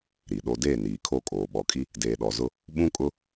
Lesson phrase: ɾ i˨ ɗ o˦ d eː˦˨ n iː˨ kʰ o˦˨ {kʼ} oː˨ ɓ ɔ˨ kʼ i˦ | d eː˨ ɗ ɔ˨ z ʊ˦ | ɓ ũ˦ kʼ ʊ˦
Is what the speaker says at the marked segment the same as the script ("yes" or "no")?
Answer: yes